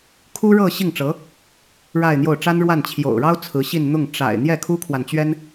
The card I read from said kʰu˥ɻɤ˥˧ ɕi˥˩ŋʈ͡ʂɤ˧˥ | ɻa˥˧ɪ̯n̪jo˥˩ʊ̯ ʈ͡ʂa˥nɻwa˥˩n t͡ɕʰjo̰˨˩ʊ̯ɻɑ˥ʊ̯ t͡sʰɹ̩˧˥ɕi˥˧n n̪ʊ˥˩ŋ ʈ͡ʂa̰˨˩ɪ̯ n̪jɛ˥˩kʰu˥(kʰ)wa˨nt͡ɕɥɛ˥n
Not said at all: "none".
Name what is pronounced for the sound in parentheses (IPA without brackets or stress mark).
kʰ